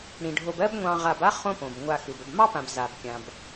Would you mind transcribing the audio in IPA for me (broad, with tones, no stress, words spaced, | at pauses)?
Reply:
ɽĩ˩ɖʱo˨bɜ˦b ŋʷɑ̃˨ʁa˨ba˦ χõ˦põ˩b ŋʷa˨ xɯ˩bə˨bmɑ˥pã˨b za˩bkʲã˩b